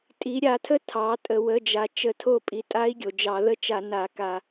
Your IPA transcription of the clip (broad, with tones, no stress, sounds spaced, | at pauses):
tʼ i˩˧ ɾʲ a˧˩˧ tʰ ə˦˥ tʰ ɑ˩˧ tʼ ə˩ w ə˩˧˩ d͡ʒ a˩ t͡ʃ ə˧˩˧ tʰ o˦˨ pʼ i˩˧ tʼ a˦˥ i̯ ɡʲ o˩ d͡ʒ ɑ˧˩˧ ð ə˦˥ t͡ʃ a˧˩˧ n a˧˩˧ k a˧˩˧